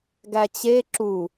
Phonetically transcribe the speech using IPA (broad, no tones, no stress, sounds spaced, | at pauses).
ɡ æ t͡ɕ e ǁ u